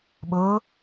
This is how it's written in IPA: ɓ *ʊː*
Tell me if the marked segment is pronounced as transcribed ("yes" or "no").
yes